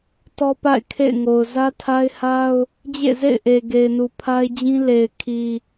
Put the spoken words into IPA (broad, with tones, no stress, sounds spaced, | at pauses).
t ɔ˦ p a̰˦˨ ɪ̯ kʰ ḛ˦˨ ɪ̯ ŋ o˨ ʊ̯ z ä˦ tʰ a˦ ɪ̯ h a˦ ʊ̯ | d͡ʑ ḛ˦˨ z ḛ˦˨ ɪ̯ ʔ e˨ ɡ e˨ ɪ̯ n u˨ pʰ a˦ ɪ̯ d͡ʑ ĩ˦ l e˨ ɪ̯ kʰ i˨